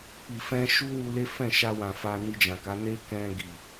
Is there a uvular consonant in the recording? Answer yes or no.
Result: no